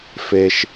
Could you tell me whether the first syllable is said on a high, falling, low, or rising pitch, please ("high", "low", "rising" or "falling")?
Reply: high